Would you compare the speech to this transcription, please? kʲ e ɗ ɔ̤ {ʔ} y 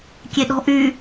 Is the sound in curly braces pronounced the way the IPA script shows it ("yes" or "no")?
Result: yes